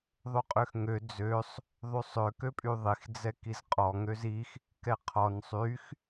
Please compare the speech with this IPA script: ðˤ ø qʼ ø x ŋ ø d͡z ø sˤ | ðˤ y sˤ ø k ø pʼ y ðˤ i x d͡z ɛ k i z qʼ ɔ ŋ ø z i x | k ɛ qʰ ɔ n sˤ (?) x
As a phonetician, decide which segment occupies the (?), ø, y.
y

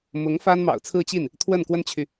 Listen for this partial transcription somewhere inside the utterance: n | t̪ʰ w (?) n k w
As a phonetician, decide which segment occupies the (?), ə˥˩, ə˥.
ə˥˩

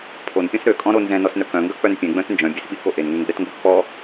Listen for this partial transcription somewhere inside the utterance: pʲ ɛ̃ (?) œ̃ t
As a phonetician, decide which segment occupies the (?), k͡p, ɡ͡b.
ɡ͡b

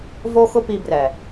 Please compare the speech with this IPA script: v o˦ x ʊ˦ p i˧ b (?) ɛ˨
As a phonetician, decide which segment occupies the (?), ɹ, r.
r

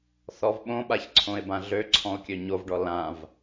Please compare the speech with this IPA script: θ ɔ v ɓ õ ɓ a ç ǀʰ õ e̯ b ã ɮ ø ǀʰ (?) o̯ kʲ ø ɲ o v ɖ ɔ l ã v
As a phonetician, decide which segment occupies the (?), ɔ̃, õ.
ɔ̃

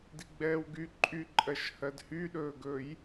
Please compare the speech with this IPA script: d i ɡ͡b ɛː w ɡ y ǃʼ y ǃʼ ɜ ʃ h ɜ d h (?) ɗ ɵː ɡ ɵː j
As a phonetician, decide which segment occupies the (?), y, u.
y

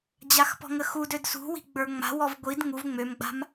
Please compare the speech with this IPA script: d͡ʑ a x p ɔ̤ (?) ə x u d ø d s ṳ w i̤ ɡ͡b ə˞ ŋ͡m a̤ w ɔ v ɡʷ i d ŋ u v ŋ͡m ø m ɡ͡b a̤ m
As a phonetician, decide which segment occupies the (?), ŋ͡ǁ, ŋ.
ŋ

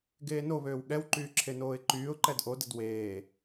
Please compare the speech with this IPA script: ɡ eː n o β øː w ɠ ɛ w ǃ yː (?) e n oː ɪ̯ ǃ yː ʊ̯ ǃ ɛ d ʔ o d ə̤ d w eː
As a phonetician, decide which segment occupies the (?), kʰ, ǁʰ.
ǁʰ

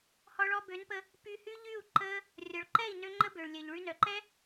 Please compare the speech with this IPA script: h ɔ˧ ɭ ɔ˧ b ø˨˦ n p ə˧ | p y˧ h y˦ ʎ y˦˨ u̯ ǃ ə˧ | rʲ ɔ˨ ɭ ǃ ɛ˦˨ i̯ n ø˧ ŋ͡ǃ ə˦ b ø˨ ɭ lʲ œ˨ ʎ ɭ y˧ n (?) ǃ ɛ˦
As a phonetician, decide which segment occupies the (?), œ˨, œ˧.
œ˨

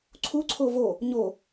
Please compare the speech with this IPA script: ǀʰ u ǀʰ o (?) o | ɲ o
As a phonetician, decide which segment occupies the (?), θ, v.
v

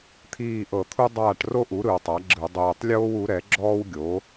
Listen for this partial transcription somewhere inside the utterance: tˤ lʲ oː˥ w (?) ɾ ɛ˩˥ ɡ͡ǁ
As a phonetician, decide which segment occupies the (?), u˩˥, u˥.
u˩˥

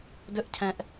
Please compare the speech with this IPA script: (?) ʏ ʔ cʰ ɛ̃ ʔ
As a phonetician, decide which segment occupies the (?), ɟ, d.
d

